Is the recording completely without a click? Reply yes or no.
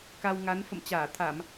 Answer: yes